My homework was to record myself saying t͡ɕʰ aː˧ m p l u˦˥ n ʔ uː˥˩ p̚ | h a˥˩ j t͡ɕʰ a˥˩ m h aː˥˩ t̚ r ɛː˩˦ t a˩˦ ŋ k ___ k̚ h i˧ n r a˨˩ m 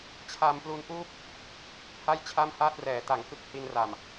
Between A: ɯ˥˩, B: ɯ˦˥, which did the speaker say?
B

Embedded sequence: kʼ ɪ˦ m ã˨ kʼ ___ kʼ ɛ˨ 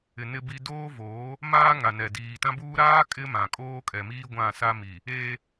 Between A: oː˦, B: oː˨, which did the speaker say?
A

